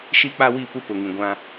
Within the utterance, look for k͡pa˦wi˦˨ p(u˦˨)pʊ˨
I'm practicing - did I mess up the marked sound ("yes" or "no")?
yes